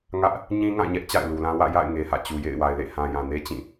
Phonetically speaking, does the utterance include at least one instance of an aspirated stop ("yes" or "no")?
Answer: no